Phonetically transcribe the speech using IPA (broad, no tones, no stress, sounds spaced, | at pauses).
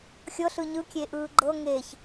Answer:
xʲ ɤ ɬ ɯ ɲ ɯ kʲ e ʔ ɯː ɡ͡ǃ ɤ ŋ e ç